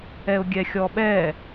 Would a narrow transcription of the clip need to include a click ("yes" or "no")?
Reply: no